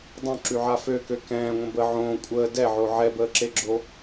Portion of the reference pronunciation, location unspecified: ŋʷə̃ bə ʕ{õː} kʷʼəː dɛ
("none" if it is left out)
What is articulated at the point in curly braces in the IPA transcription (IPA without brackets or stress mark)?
õː